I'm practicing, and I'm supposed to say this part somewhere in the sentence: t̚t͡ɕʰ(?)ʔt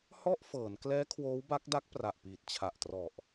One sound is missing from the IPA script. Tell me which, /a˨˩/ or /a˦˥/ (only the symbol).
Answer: a˨˩